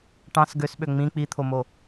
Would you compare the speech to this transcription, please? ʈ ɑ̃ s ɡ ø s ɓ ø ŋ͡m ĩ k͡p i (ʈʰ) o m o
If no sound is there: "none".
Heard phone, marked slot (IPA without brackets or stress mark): t̪ʰ